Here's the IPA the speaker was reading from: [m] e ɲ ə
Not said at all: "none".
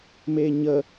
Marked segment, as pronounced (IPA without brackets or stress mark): m